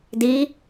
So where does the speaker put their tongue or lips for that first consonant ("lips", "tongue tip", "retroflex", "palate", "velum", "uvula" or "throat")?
tongue tip